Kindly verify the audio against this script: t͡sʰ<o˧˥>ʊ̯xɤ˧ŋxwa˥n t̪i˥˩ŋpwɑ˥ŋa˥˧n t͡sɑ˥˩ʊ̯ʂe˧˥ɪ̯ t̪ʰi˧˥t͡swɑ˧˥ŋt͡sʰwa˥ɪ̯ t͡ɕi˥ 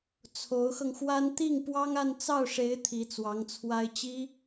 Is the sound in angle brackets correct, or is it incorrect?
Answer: correct